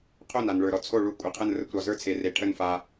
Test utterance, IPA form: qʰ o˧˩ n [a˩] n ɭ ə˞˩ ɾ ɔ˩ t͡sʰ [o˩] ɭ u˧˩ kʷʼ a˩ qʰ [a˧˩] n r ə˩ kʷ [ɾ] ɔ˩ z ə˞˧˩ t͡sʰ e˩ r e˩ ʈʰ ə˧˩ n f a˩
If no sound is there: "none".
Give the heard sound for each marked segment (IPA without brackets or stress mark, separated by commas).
a˩, o˧˩, ə˧˩, ɾ